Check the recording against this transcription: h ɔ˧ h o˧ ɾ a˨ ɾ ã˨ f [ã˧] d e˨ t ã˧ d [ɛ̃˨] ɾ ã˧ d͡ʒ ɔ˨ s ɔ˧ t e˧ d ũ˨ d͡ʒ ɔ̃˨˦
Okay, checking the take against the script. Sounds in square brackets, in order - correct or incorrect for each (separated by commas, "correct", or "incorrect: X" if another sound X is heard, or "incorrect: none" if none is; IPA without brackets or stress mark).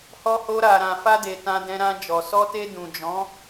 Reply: incorrect: a˧, incorrect: ɛ̃˧